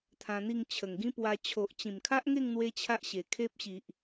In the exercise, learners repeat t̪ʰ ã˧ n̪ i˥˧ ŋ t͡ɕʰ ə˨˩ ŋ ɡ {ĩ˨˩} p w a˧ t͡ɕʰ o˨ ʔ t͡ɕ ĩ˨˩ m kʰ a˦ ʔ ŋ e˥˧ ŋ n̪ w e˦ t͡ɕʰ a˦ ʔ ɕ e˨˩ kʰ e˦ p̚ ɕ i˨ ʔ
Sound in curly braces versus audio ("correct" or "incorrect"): incorrect